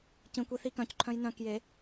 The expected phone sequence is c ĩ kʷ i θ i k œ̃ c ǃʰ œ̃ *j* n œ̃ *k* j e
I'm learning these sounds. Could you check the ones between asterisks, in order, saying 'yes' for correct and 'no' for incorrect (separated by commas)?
yes, yes